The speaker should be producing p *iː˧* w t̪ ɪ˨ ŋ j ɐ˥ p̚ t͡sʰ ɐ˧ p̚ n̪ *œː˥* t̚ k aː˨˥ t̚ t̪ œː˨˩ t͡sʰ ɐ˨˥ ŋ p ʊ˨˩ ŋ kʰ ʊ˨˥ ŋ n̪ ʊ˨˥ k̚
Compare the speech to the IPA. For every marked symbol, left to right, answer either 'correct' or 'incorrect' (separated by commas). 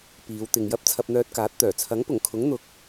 incorrect, incorrect